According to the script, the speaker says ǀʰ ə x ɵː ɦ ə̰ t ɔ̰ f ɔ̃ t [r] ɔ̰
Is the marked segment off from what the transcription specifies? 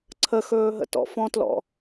yes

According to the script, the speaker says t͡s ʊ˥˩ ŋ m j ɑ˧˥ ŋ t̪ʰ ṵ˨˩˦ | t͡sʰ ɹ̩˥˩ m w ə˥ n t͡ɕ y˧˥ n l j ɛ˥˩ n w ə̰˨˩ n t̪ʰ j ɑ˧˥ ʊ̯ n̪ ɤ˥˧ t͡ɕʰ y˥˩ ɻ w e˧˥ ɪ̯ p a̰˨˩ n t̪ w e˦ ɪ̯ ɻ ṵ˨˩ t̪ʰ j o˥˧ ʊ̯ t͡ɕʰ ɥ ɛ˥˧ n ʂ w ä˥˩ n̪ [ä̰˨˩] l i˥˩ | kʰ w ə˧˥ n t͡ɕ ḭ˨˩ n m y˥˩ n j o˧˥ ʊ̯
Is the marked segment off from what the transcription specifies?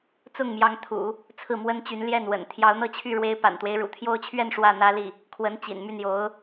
yes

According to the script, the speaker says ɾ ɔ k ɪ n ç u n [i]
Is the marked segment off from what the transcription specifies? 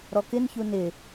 yes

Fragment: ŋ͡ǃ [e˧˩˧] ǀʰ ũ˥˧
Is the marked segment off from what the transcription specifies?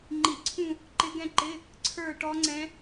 yes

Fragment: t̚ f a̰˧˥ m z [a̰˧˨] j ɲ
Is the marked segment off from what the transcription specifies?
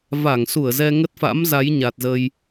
yes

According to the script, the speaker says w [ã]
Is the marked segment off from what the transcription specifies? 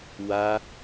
yes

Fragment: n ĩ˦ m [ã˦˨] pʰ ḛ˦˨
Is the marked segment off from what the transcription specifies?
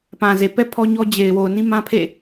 yes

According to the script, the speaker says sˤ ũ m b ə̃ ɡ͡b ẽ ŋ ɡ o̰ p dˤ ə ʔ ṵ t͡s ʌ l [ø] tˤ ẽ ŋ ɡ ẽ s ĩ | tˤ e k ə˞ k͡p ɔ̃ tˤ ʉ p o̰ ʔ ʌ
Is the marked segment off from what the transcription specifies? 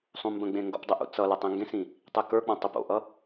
yes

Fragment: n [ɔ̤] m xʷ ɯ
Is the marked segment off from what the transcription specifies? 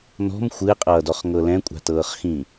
no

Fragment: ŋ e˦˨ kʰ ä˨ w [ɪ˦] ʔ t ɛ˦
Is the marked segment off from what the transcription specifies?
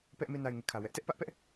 yes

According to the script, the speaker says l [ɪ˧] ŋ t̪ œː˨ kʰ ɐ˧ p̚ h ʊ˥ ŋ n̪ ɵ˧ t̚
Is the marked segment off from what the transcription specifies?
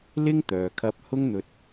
yes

